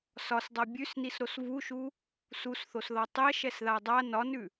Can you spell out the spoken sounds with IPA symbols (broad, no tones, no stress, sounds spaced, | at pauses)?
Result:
s ɒ s dˤ a bʲ ʉ s n i s ɾ o s v u ʃ u | s u s θ o s ð ɒ tˤ ɛ ʃ ɛ s ð a dˤ a n ɒ n ʉ